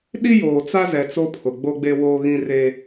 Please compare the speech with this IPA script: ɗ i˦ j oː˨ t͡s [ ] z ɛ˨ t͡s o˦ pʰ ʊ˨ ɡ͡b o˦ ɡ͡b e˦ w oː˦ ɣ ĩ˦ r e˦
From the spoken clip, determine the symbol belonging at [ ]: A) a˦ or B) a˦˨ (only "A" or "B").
A